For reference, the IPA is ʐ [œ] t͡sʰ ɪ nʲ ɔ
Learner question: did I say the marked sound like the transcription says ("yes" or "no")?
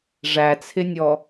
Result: no